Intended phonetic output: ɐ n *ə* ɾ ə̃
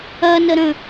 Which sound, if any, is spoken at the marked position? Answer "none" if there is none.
ə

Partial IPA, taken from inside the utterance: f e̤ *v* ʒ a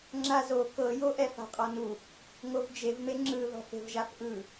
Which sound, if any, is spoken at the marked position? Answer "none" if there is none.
v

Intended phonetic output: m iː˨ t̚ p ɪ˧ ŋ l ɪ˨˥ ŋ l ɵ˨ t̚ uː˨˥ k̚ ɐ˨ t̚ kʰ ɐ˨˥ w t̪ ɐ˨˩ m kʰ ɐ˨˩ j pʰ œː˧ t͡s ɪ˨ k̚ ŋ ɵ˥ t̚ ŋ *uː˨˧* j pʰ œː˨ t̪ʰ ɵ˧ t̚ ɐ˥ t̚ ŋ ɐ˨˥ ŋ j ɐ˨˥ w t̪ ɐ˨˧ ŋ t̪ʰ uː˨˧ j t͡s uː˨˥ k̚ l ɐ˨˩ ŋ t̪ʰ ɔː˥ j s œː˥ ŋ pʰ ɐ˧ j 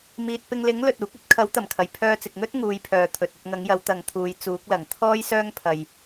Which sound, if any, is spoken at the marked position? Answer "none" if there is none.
uː˨˧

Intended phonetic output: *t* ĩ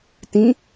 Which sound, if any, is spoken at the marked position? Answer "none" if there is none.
t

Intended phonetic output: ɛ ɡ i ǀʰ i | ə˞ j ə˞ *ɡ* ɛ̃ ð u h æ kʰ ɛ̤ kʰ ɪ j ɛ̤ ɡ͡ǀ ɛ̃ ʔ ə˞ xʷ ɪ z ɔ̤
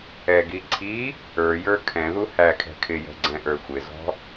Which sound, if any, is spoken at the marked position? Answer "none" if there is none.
kʰ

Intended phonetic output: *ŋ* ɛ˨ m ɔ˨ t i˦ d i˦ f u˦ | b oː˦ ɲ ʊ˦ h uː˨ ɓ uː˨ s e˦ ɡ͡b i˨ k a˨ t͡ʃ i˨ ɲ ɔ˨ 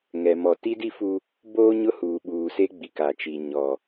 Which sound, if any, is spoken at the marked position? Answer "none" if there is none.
ŋ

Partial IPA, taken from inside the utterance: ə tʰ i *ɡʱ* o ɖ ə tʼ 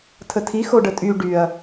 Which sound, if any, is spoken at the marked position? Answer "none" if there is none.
x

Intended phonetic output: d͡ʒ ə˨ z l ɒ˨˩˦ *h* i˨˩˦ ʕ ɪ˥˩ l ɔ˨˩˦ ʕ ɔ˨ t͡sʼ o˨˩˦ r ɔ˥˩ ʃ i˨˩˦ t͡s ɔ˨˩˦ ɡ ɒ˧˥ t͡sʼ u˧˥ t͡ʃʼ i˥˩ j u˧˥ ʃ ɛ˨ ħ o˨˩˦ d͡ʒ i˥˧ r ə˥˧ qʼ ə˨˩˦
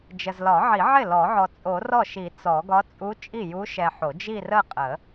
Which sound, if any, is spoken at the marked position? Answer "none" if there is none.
ʕ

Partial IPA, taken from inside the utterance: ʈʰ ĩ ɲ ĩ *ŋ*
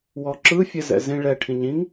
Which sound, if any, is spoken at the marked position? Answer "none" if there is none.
ŋ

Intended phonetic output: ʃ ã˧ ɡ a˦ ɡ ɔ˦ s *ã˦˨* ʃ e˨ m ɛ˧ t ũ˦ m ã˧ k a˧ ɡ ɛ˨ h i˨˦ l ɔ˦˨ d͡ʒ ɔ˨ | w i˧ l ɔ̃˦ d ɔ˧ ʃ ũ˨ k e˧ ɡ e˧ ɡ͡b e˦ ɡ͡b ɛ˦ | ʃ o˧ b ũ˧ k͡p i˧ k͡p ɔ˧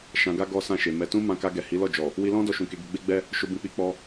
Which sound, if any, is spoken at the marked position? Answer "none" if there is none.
ã˦˨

